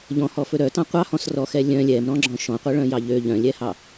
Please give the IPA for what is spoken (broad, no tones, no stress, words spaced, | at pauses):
ʎɔ̃hɔfɵ ɾœtɑ̃ qʷɑhɔ̃s rɔxɛ lʲœ̃ lʲɛmɾɔ̃ɡ͡ǁɔ̃ ʃɔ̃qʷɛɭœ̃jɑ ʎø ʎœ̃lʲɛhɑ